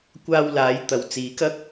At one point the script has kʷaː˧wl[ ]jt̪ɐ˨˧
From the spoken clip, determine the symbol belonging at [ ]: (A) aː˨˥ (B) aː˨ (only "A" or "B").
A